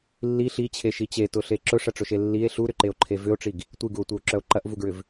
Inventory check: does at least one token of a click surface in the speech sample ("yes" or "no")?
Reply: yes